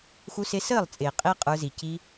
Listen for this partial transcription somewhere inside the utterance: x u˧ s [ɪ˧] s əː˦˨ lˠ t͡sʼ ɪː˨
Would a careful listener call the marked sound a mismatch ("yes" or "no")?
no